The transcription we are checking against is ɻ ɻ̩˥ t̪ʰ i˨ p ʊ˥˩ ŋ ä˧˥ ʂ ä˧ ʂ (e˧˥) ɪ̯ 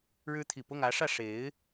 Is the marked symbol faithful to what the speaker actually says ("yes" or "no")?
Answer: yes